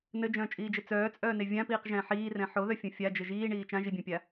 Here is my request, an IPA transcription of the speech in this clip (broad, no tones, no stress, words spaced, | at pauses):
nɘd͡ʒœ̃ːt͡ʃʼiːd͡ʒɘ t͡sœːt͡sʼœːne vʲãpiːqʒɛ̃ː ħiːrɛ̃ ħoðœfʲõ fʲad͡ʒɘ ʒiːɳiː t͡ʃãʒibʲœ̃pʲa